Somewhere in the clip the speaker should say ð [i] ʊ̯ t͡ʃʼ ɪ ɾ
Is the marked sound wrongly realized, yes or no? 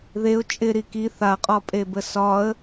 yes